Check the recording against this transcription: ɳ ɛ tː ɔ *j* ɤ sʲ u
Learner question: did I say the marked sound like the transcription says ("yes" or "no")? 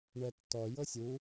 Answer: yes